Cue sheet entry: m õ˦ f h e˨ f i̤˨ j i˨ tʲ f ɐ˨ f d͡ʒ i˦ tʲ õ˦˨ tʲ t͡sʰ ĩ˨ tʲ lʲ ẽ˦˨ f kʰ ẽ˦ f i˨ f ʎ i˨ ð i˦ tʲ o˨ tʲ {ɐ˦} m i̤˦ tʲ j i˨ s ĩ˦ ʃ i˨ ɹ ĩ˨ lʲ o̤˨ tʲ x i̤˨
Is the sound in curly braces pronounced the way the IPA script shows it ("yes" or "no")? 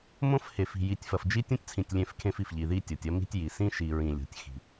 yes